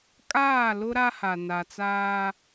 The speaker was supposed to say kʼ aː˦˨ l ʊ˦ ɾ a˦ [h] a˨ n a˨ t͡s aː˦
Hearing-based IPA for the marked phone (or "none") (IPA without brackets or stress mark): h